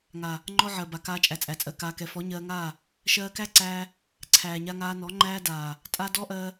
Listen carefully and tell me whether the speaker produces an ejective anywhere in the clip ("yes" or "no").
yes